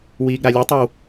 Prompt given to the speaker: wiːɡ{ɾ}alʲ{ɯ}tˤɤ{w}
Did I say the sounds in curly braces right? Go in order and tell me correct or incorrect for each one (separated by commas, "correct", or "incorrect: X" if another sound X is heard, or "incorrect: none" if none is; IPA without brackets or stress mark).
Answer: correct, correct, correct